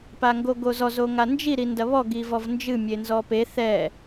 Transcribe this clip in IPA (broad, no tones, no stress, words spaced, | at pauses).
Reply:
paŋɡoɡozɔz oŋand͡ʒi ɾindɐβɔɡ ivɔvnd͡ʒɨ mʲenzɔpe θɛ